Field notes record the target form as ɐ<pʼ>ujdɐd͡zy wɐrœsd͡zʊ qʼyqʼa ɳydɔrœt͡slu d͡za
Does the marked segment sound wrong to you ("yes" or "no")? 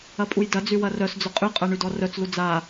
no